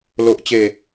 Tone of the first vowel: low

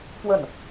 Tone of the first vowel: falling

